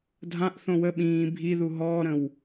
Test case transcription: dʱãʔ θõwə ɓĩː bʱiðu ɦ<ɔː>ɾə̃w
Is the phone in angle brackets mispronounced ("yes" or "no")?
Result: no